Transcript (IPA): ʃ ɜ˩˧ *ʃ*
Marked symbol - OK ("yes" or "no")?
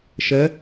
no